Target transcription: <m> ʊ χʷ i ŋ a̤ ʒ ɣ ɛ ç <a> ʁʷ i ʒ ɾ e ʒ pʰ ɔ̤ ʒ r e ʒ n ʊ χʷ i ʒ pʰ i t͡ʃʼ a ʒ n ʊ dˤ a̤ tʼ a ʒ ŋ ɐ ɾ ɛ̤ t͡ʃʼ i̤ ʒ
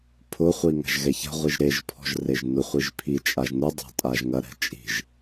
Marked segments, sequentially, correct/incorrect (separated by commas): incorrect, incorrect